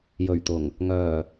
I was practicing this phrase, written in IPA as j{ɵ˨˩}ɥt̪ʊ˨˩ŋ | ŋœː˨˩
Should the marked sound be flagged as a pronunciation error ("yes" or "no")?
no